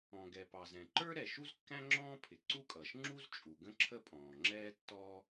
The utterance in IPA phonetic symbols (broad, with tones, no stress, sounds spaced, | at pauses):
ɔ̃˩ ɡ ɛ˩ p ɑ˩ z ɛ̃˩ ǃ ə˞˥ ɾ ɛ˩ ʃ u˥ z kː æ̃˥ ŋ͡ǁ ɔ̃ː˥ pʰ ɪ˩ ǀ u˥ kʼ ʌː˩ ʃ ŋ͡ǁ u˥ z t͡ʃʼ u˩ ɡ ə̃˥ ǁʰ ə˥ pʼ ɔ̃ː˩ ŋ͡ǁ ɛː˥ tː ɔː˥